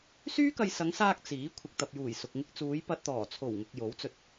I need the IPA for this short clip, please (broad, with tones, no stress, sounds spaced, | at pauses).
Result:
s yː˥ k ɐ˧ j s ɐ˨˧ ŋ s aː˧ k̚ t͡s iː˨˥ kʷʰ ɪ˨ k̚ t̪ ɐ˨ p̚ j uː˨˩ j s ʊ˨ k̚ ŋ ɪ˧ k̚ t͡s uː˨˧ j p ɐ˧ t̚ t̪ ɔː˨˩ t͡sʰ o˨˩ w ŋ ʊ˨ k̚ j o˨˥ w t͡s ɵ˧ t̚